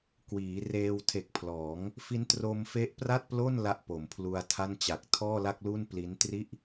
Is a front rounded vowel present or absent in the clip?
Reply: absent